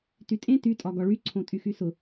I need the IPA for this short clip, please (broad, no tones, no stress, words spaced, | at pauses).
tytʼẽ tytʼɒ ɡɒɭyǀʰõ tʼyxysʊ